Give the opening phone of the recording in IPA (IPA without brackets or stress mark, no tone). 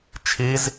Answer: t͡ʃʰ